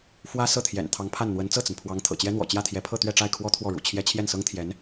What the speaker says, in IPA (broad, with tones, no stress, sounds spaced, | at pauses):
f w ä˥ s ɤ˥˩ t̪ʰ j ɛ̰˨˩ n t̪ʰ ɑ˧˥ ŋ pʰ a˥˩ n n̪ w ə˧˥ n t͡s ɤ˥˩ t͡s ə˩ n pʰ w ɑ˧˥ ŋ t̪ʰ ɤ̰˨˩ t͡ɕ j ɛ˥ n̪ w ɔ̰˨˩ t͡ɕ j ä˥˩ t̪ʰ j ɛ˧˥ pʰ ɤ˥˧ t̪ ɥ ɛ˥˧ ʈ͡ʂ a˥˩ ɪ̯ kʰ w ɔ˥ t̪ʰ w ɔ˥˩ ɻ ṵ˨˩ t͡ɕʰ j ɛ˥ t͡ɕʰ j ɛ˥˩ n s ɤ˥ ŋ t̪ʰ j ɛ˧˥ n